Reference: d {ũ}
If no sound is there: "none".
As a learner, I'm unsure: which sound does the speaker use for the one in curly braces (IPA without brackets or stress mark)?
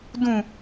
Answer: ũ